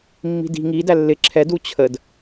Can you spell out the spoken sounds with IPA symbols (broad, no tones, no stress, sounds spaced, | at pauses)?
mː i̤ d i̤ ŋ i d æ lː ɪ ǁʰ ɛ d u t͡ɕʰ ə d